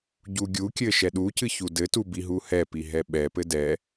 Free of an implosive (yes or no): no